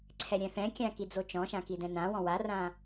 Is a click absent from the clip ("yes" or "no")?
no